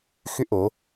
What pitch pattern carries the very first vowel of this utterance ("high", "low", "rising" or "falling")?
high